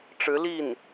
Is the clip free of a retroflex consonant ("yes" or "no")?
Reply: no